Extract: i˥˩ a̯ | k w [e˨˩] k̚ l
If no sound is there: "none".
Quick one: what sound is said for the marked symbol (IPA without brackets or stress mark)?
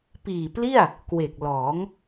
e˨˩